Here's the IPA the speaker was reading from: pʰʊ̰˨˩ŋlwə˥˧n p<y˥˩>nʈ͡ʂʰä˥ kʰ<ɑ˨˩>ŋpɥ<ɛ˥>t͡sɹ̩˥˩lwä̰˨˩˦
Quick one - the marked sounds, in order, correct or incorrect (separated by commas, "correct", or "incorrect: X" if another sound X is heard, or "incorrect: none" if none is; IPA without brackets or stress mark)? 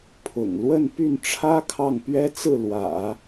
correct, incorrect: ɑ˥˩, correct